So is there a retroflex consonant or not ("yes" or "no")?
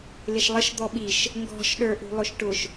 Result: yes